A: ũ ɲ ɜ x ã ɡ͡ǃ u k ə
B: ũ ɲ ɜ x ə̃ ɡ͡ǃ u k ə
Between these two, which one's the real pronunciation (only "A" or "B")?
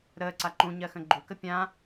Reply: B